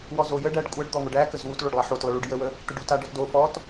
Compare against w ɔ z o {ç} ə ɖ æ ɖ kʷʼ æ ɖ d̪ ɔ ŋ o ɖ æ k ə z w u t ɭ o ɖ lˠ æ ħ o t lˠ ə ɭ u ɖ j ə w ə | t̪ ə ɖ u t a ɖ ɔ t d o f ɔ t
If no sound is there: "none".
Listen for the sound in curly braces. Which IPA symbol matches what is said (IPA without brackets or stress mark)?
j